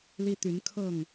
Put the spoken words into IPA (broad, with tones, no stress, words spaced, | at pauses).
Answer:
li˦t̪y˨˦n kʰɤ˥˨ŋ